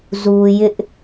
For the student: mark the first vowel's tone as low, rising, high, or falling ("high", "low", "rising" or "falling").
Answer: low